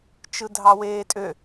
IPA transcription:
t͡ʃ ɯ dʱ ɑ w eː tʼ ø

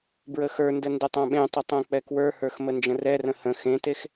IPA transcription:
b ɹ ə x ə˞ n d ə n d ə tˤ ã ɓ ẽ tˤ ə tˤ ɛ̃ k͡p ɛ k w ə˞ h ə˞ x m ə n d͡ʒ ə̃ r ɛ r ə̃ h ə̃ x ẽ t e x

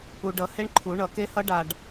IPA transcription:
u˨ ɖ ʌ˨˩˦ h e˦˥ ɳ ǃʰ u˨˩˦ ɳ ʌ˨˩˦ k e˦˥ h ʌ˦˥ ɖ a˨ ɖ

